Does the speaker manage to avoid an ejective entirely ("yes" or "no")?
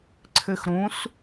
yes